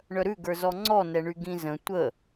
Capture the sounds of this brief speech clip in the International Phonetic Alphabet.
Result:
ɳœɾʉɡə˞zɔ ŋ͡ǀɔnɛɳy ɡĩzə̃ tʷə

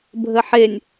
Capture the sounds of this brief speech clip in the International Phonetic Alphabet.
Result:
bʱəħenʲ

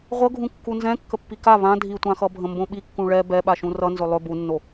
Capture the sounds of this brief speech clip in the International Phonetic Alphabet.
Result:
ʁʷɤɡʱũ kːunzɛ̃ kːəpːika βã dʱitʷãxʌ bʱə̃mbõɓikːũ ɭɛ bɛɓaʃũ rʌnzɵ lˠɵ bunːo

